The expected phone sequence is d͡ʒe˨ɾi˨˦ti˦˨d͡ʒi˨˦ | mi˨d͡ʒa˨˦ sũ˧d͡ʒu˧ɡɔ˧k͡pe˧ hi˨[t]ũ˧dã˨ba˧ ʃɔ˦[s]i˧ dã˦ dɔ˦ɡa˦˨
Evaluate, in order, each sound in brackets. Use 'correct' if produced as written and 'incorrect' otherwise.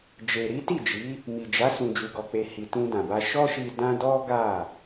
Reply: correct, incorrect: ʃ

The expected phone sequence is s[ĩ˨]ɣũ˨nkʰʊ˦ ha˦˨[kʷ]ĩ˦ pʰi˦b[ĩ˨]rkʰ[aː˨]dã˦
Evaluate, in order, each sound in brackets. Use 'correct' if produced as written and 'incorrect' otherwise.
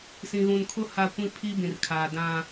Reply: correct, correct, correct, correct

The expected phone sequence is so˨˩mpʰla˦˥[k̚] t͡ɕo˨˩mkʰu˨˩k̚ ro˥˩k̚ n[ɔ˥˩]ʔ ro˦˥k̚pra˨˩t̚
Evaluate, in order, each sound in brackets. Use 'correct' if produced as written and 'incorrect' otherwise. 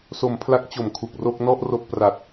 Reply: correct, correct

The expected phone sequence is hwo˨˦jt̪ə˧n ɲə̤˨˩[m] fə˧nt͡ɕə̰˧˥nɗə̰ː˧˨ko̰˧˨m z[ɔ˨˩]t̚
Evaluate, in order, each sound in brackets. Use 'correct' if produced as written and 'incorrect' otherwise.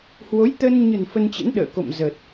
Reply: incorrect: n, incorrect: ə˨˩

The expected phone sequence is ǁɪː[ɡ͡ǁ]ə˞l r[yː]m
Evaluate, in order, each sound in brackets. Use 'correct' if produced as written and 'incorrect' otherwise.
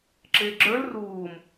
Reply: correct, incorrect: uː

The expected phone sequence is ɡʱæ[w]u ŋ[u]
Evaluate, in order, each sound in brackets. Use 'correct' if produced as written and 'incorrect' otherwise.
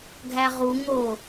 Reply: incorrect: ʁ, incorrect: o

